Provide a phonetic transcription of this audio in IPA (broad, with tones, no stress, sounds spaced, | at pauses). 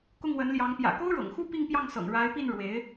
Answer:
k ʊ˥˩ ŋ w ə˧˥ n l j ɑ˧˥ ŋ p j ä̰˨˩ k o˥ ʊ̯ ɻ ɤ̰˨˩ ŋ x u˥ p i˥˧ ŋ p j ɑ˥˩ ŋ s ɤ̰˨˩ ŋ ɻ a˧˥ ɪ̯ p i˥˩ n ɻ w e˧˥ ɪ̯